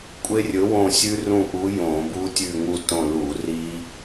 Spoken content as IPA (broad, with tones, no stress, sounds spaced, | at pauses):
kʷʼ e˦˥ rʲ ɵ˨˥ w õ˦˨ sʲ ʉ˦˥ r ũ˦˨ ʔ u˨˥ j õ˧˩˧ b u˦˥ tʲ ʉ˦˨ ŋ u˦˨ t õ˦˨ l u˧˩˧ r i˦˥